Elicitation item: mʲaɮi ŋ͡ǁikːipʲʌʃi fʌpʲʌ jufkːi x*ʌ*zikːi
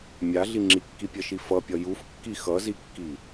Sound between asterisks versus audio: correct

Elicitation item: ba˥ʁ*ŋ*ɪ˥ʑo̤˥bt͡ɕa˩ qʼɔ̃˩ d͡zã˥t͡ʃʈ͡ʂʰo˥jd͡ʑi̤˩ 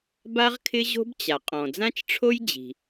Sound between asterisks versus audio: incorrect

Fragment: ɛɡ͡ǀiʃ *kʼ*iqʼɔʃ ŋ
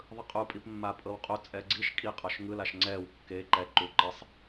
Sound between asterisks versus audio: correct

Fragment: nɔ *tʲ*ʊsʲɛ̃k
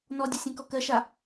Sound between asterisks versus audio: incorrect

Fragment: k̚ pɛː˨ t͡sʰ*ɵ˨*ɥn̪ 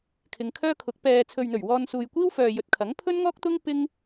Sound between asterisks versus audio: correct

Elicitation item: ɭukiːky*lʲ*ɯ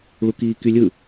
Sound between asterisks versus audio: correct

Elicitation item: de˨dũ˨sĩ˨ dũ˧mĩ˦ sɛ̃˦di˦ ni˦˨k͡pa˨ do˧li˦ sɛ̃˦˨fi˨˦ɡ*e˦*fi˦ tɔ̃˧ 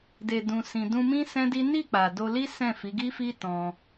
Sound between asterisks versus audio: incorrect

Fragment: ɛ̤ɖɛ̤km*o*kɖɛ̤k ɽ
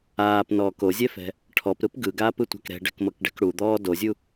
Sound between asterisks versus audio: incorrect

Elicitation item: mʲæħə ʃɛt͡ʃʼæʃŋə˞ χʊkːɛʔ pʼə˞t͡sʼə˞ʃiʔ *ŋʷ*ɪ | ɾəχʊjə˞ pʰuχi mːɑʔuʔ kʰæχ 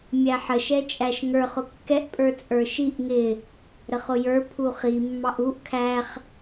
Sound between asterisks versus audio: incorrect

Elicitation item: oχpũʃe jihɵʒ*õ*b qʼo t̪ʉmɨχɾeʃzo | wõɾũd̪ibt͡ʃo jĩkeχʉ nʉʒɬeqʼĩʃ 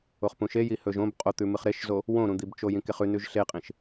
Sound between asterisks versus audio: correct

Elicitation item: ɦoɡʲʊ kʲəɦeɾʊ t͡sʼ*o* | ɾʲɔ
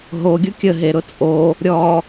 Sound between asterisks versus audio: correct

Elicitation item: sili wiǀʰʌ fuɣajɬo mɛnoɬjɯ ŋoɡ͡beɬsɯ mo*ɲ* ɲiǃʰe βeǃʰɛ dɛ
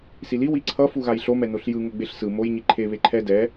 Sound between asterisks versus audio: incorrect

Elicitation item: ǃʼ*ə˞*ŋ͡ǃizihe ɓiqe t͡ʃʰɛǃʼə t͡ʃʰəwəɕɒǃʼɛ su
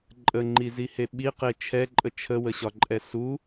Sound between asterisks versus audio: incorrect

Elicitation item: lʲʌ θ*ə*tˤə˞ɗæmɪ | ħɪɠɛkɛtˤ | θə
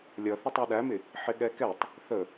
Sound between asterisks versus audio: correct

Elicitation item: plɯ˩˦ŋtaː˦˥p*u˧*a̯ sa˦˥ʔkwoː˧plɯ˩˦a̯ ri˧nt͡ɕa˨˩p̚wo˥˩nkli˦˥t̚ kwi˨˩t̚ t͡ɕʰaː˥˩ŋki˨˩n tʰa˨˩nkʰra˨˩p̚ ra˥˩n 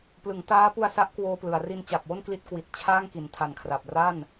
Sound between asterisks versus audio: correct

